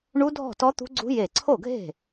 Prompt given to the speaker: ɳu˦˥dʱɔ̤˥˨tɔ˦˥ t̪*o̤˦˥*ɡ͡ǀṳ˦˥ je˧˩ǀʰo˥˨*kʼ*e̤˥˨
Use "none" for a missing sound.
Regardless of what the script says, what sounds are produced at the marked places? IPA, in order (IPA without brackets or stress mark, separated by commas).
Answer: ṳ˦˥, ɡʱ